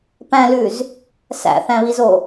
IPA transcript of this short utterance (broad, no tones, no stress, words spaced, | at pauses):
pæ̃lʉz | sæ̰θæ̃βizo